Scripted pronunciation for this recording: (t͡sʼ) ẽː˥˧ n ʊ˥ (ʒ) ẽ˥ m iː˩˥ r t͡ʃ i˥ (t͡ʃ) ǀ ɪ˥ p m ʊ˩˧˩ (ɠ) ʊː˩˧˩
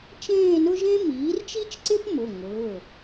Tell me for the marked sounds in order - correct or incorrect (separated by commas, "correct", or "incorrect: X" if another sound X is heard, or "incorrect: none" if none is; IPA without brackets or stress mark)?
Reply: incorrect: t͡ʃ, correct, correct, incorrect: ŋ